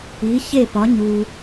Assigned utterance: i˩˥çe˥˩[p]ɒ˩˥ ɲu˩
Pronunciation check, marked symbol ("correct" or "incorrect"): correct